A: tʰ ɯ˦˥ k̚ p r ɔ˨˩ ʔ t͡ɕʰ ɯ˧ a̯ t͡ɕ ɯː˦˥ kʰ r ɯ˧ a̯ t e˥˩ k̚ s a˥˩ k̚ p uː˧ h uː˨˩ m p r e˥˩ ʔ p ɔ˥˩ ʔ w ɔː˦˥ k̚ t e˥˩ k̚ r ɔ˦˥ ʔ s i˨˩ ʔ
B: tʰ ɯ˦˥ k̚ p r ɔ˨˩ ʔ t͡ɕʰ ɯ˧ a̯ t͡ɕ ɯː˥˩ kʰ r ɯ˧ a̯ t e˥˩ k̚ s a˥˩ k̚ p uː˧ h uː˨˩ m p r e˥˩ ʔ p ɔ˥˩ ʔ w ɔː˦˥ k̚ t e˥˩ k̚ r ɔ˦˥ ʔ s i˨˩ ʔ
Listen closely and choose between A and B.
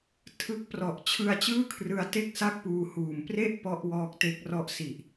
B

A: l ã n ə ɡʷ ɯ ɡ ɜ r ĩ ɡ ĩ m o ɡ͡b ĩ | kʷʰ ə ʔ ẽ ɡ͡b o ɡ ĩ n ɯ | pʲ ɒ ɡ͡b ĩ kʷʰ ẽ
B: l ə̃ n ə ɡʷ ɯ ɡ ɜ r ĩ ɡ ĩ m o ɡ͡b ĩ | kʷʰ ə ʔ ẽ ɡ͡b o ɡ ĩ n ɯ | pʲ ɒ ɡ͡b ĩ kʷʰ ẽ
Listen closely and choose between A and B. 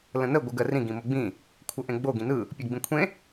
B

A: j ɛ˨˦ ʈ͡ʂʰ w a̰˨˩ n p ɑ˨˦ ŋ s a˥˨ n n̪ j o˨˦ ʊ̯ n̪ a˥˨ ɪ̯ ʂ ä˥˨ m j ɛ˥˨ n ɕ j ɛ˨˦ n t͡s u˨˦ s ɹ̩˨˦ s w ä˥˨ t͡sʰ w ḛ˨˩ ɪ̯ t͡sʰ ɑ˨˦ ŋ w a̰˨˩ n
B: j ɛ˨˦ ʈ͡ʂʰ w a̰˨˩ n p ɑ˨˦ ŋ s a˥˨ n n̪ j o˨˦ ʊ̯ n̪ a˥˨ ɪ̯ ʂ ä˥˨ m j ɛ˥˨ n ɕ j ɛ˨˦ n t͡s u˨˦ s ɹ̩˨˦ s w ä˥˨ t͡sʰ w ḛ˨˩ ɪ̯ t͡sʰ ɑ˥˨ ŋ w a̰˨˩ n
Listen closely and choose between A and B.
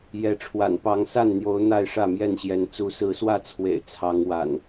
A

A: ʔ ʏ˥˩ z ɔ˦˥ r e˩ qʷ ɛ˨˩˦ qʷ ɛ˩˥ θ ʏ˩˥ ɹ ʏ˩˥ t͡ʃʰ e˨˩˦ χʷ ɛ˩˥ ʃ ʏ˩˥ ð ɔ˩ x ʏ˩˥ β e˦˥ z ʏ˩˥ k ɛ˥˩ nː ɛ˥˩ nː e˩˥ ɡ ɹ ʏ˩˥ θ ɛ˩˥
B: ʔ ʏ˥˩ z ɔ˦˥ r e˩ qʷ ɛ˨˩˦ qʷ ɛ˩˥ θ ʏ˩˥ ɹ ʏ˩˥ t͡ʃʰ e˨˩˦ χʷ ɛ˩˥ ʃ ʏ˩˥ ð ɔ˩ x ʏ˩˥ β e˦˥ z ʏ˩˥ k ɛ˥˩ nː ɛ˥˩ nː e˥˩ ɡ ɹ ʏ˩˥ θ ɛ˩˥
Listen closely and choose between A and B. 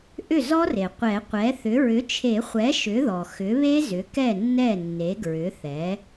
A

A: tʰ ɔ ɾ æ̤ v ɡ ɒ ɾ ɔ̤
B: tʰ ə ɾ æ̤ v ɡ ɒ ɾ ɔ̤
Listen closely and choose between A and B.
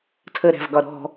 B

